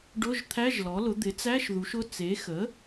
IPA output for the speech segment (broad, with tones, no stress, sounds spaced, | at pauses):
ɖ ʊ˧˥˧ ʒ t̪ʰ æ˧˥˧ ʒ l ɔ˩˥ l ʊ˩˥ d̪ ɪ˩˥ t͡s æ˧˥˧ ʃ ð u˩˥ ʃ ʊ˧˥˧ t͡s e˩˥ x ə˩˥